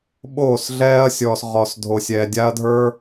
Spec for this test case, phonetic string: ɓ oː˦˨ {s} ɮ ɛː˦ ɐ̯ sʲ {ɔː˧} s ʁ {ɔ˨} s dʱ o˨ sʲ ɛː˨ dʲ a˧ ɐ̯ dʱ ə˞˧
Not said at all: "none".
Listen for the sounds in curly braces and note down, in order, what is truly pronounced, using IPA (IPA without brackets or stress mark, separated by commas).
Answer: s, ɔː˧, ɔ˨